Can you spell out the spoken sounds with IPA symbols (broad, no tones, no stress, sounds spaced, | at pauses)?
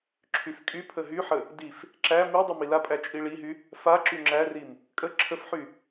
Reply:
ǁʰ y f kʼ y pʰ ə ɦ y ħ ə | d i f | ǁ æ m i dˤ y m i l a pʼ æ t͡ʃʼ i ɭ i ɦ y | f a ǁ y ŋ͡ǁ æ r i m | kʼ ə ǁʰ ə f ħ y